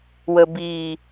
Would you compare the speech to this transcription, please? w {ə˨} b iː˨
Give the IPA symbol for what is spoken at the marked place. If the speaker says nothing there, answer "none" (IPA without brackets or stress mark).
ə˨